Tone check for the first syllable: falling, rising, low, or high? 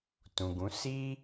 low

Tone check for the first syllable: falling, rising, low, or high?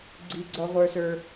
high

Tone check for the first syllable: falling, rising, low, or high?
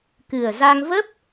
low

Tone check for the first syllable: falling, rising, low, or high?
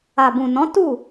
low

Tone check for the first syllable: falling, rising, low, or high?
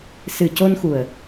low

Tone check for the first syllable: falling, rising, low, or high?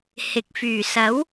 rising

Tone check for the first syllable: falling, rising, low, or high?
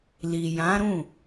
low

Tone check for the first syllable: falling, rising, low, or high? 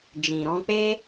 low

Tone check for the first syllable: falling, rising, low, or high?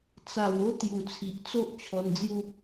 low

